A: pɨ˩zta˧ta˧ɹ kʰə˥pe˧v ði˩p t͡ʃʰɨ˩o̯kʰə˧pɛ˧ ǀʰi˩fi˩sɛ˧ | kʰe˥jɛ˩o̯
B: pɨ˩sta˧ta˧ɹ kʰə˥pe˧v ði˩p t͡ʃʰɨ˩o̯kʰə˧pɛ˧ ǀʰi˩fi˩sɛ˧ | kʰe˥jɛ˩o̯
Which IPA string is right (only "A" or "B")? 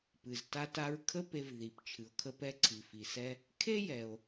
A